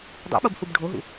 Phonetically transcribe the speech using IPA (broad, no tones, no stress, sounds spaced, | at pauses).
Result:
dˤ ṵ ɓ o b h u b ɖʱ o ɦ ṵ